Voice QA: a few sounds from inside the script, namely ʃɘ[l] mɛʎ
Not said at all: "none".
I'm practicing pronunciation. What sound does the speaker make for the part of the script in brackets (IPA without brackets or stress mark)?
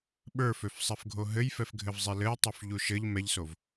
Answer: ʎ